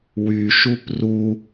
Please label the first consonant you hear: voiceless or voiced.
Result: voiced